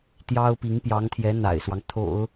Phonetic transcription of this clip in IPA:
t̪jɑ˥ʊ̯pi˧˥ŋpjɑ˧˥ŋt̪ʰjɛ˧˥ n̪a̰˨˩ɪ̯swɑ˦ŋ t̪ʰo̰˨˩˦ʊ̯

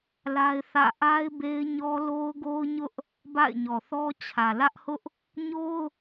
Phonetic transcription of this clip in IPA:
la˦ɪ̯θä̰˦˨ ʔa˦ɪ̯be˦ɪ̯ɲɔ˦ lo˦ʊ̯ɡo˦ʊ̯ɲʊ˦ʔ | ba̰˦˨ɪ̯ɲɔ˨θɔ˦t͡ɕʰä˨ lä˦ʔhʊ˦ʔ | ɲo˦ʊ̯

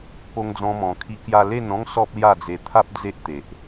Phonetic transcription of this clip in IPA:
po˦ŋd͡zɔ̃˦mɔ̃˧ kʰi˧kja˧ le˥˧nɔ̃˦ŋ sɔ˦p̚lja˥˧d͡ze˧ t̪ʰa˦p̚ d͡ze˦ʔt̪e˨ʔ

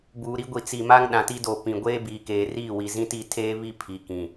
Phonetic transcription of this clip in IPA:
buː˨ɾi˦ ɡʷi˨ t͡si˨ma˦ŋ ɗã˨ti˦doː˨ pĩ˨ ɡʷeː˦biː˨keː˨riː˦˨ wi˨zĩ˦ti˦˨ tʰeː˦βi˦ pʰi˨kĩ˨

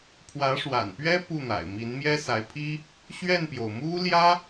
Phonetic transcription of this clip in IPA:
pʰwä˧˥ʂwa̰˨˩npɥɛ˥ pu˥˩n̪a̰˨˩ɪ̯ mi˧˥nmjɛ˥sa˧˥ɪ̯pʰi˥ | ɕɥɛ˥˩npjo˩ʊ̯mu˥ ljä˥

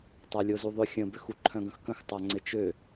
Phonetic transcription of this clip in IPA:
tˤalʲozuðˤʏ xʲə̃bʏx uǃʰœ̃ɡə̃xkə̃x tˤaŋ͡ǀɪt͡ʃø

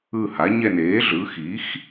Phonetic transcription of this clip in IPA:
ɯ˦˨ha˩˥ɲɛ˦˨n eː˩˥ɮɯ˩˥xi˩˥x

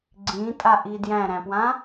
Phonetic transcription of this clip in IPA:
ɡ͡ǀĩtʼaʔi djæ̃ɾæ̃pwã

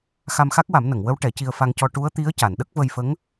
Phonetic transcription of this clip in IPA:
xa˧mxa˦˥k̚wa˨˩˦mnə˨˩˨ŋ wə˧˥w ʈɛ˨˩˦ci˧ə̯ fa˧ŋcɔ˧ ʈu˧˥ə̯t̪i˧˥ə̯ ca˨˩˨nɗə˦˥k̚və˧jfə˧˥ŋ

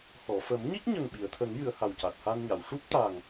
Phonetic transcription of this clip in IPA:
xɔ˨˩˨fə˨˩˦m ɲi˦˥k̚ɲə˨˩ŋ ɓi˨˩˨ə̯t̪ʰə˨˩˦ŋjɨ˨˩˨ə̯ ha˨˩wca˨˩t̚ha˧nɲa˨˩˨w ʂu˦˥p̚t̪a˨˩ŋ

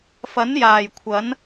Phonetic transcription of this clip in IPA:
fɐ˨˥njaː˨˩j kʷʰɐ˨˥n

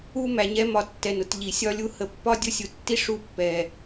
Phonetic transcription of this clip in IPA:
u˥ mæ˧ɲɛ˥mɒ˧tːɛ˧n ʊ˧tʎi˧sʲɒ˥lʲu˥ hə˧pːɒ˥ dʲʊ˥sʲu˧tːi˥ ʂu˥pːɛ˧

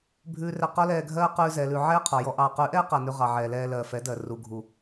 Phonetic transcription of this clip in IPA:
bʱʉː˧rɛ˧ qɔ˦lɛː˧ɡʱɜː˦ qʉː˧zɛː˨lʉ˨ ʕɛː˦qʰɔ˨jɔ˧ ʔɑː˨qʉ˨˦ʔɛː˦qa˨ nʉ˧ʁɑ˨ʕɛː˨lɛː˧ lɜː˨fɛ˨˦ dɜ˨ ru˨ɡʱu˨

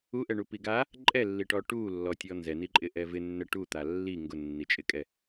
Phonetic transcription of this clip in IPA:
uʔɛɳupi ɡa | ǃʼɛlːiʈɔ ʈulːɔtʲɔ nzɛniǃʼɪʔɛ vɪnːɛ ʈut̪a lːi ŋɡʊnːit͡ʃʼɪkʼɛ

